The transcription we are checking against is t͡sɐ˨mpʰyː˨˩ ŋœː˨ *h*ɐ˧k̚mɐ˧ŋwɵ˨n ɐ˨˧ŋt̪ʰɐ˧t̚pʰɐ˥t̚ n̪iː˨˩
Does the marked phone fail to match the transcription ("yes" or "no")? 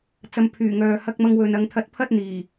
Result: no